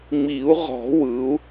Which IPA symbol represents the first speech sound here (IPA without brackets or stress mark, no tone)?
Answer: ŋ͡m